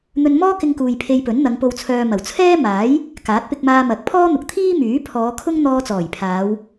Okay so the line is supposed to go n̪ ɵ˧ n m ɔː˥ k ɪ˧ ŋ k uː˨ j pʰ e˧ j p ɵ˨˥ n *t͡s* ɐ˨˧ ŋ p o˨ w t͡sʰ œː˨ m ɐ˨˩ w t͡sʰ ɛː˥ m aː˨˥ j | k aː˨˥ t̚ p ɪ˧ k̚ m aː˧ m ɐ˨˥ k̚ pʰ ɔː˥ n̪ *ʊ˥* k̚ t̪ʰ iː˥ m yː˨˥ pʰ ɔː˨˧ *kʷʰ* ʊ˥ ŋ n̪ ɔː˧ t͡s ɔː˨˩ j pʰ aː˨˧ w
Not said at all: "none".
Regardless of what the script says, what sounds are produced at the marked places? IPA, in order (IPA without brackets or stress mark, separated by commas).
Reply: n̪, ʊ˨, kʰ